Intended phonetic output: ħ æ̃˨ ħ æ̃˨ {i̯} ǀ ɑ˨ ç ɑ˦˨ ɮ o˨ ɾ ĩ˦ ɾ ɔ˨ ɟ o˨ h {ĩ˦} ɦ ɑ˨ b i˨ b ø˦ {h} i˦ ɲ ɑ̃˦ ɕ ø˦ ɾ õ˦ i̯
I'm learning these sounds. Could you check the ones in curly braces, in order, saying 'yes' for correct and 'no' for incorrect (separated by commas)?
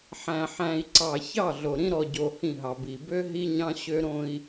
yes, no, no